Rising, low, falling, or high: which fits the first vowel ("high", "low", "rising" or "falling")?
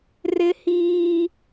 high